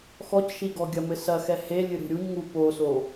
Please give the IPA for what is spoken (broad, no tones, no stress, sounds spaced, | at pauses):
x ɔ c ʃ i ɡ ɔ ɡʲ ɐ m ɘ s ɐ x ɛ h e lʲ ɨ ɾ ṳ ɾʲ u ɲ ŋ u p o s o